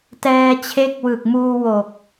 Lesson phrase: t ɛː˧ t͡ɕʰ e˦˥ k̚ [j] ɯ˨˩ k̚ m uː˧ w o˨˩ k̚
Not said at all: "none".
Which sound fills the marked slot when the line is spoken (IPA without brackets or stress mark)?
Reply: w